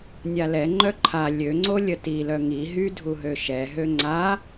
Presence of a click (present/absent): present